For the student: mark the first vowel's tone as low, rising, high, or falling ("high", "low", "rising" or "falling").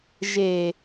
low